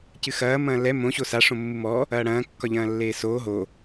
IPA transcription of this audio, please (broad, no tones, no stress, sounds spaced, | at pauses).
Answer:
c ɨ x ɐː m ɐ̃ː l ɛ m õ ɕ o s a ʂ õ mː u m ɔ | ɐː ɽ ɐ̃ː kː ɒ ʎ ɐ̃ː lː eː s oː ɦ o